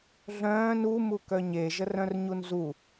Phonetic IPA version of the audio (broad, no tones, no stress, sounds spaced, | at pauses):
ɮ œ̃ː n u m u k œ ɲ e ʒ ə r œ̃ r ɲ u n z u